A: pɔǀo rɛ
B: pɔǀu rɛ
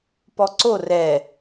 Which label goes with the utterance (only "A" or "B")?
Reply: A